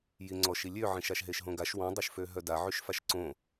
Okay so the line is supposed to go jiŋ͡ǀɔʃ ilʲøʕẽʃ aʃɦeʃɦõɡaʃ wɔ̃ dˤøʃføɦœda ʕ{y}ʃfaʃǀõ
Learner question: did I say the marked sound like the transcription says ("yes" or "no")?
yes